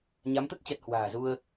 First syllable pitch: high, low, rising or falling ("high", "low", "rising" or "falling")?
rising